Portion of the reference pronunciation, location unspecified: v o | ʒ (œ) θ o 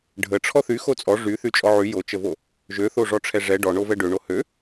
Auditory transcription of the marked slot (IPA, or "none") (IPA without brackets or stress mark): ø